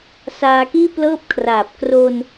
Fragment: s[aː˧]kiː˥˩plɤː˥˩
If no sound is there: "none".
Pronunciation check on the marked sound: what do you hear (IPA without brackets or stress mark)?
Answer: aː˧